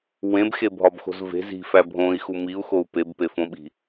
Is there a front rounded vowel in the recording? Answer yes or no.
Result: no